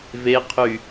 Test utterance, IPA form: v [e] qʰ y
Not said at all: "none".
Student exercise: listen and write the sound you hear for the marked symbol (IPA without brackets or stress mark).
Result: e